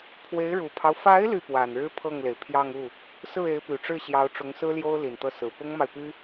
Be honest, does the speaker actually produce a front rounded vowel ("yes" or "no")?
yes